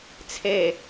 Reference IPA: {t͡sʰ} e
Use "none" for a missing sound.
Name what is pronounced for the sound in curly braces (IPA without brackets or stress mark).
t͡sʰ